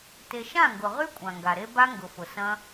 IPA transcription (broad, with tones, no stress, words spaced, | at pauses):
te˧ ʃã˦˨ŋɡʊ˨ʁy˦ kʷʼã˨ŋɡa˨ɾe˦ ba˦ŋɡʊ˨fʊ˨ sɐ̃˦